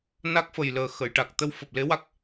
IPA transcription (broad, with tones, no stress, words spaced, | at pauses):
na˦˥k̚fə˨˩jləː˨˩ xə˨˩˨jʈa˨˩k̚ t̪ə˧wfəː˨˩p̚le˧˥wa˦˥k̚